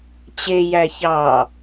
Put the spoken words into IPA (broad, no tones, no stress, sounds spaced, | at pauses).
t͡ɕ e j æ ç ɑ